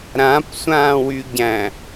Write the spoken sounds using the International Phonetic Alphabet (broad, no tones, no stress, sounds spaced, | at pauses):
ɾ ã p sʷ ãː w y ɟ æ̃